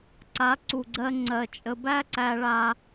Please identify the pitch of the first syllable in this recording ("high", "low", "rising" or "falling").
rising